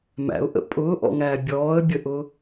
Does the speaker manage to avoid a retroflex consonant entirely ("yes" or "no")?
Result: yes